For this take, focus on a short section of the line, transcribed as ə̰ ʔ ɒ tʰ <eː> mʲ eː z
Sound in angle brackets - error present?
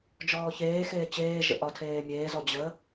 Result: no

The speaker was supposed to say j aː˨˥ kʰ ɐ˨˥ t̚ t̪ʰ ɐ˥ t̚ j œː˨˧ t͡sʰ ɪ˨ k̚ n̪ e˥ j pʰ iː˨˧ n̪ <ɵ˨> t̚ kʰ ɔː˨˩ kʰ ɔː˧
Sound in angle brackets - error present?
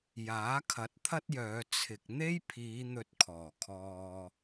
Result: yes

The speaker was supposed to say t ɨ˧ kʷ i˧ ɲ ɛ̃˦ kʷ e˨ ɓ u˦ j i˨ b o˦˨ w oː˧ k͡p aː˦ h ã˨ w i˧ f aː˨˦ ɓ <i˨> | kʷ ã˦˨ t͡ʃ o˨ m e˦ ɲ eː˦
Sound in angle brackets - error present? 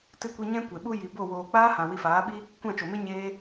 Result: yes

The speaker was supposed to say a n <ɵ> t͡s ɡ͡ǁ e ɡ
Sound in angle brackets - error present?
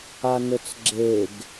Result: no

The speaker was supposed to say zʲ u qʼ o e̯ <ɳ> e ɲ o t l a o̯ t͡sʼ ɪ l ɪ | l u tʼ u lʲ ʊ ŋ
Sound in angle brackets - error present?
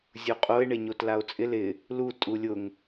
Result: no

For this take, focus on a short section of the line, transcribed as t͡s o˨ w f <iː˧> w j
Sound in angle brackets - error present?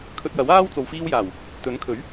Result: no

